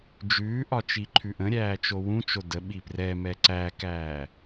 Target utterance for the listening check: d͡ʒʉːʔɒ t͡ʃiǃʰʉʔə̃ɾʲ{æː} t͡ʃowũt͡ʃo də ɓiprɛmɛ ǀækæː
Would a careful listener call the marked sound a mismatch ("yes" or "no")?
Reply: no